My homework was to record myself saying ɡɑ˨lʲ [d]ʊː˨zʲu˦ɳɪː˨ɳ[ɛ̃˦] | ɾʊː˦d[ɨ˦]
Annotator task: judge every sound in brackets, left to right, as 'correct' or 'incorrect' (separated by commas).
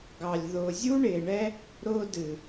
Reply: incorrect, incorrect, incorrect